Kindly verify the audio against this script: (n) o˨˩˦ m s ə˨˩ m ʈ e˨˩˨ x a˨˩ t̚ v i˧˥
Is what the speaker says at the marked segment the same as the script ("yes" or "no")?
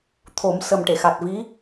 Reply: no